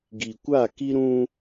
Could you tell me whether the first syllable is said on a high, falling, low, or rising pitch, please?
low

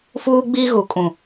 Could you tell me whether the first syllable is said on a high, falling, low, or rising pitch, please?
high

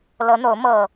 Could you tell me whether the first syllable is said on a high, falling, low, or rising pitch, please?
rising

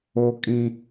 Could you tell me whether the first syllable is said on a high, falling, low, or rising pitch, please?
high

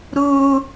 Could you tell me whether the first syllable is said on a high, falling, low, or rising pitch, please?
high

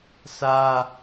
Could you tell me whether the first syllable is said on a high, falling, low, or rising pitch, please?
high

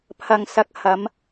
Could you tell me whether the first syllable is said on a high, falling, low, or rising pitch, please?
low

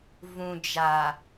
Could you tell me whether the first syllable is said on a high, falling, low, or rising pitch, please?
low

